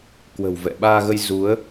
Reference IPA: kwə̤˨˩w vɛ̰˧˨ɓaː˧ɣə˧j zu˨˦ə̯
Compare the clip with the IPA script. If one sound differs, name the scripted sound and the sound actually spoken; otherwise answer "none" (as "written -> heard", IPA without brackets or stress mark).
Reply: none